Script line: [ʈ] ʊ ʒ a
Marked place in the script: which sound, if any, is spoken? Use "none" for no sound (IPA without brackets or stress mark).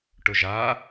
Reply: ʈ